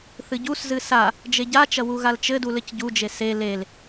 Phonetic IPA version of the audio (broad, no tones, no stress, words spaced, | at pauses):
θɨɟuszɨ sa | d͡ʒeɟat͡ʃɐ wuɣalt͡ʃɘdu lɘcɟud͡ʒe se lel